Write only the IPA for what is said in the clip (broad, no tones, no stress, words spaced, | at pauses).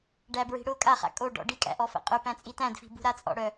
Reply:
ɖæbɹi̤ ɽʊ kʼaχa̰ kʼoɖɔ̰ ɖikʼæ̰ʔɔfæ̰ qʼʊpæ̃t͡sʼi tæ̃dfi̤bṳɾa t͡sʼɔ̰ɽœ